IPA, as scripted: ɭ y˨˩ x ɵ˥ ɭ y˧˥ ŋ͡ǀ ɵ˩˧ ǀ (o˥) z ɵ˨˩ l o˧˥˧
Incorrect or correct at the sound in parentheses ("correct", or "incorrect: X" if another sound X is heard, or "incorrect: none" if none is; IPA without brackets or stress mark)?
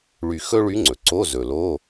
incorrect: o˧˥˧